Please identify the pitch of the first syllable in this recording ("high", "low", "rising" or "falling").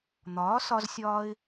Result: rising